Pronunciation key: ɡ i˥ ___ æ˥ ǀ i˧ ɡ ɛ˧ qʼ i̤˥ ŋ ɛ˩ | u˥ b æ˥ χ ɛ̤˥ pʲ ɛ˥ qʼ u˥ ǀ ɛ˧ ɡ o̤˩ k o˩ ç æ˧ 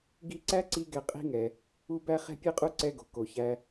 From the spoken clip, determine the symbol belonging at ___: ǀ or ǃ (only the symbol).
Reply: ǀ